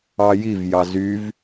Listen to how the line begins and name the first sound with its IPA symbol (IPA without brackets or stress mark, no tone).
ɑ